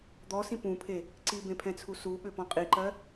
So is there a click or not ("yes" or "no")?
yes